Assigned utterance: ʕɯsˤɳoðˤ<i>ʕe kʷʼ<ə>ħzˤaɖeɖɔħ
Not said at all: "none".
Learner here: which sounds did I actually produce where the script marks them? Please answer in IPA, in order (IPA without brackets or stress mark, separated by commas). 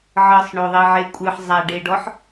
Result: i, ɯ